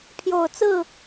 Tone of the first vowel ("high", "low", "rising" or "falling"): low